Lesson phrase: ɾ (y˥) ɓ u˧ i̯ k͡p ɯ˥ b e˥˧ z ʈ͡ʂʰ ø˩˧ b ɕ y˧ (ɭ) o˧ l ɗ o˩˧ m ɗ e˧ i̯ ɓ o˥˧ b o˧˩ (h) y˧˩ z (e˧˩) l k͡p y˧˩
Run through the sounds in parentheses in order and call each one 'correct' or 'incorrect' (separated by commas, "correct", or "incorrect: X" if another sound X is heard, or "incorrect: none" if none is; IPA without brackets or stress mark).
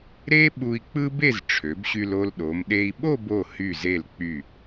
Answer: incorrect: e˥, incorrect: l, correct, correct